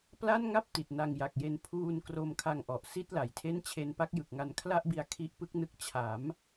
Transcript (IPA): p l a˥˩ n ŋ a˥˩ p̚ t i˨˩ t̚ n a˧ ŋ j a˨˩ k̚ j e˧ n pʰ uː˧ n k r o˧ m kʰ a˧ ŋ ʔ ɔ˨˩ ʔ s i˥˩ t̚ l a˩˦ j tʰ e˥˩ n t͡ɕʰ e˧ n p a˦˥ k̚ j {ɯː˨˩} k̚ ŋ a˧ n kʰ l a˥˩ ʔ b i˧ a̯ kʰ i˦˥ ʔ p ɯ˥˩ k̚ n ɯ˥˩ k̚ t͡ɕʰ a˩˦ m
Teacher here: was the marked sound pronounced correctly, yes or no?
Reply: no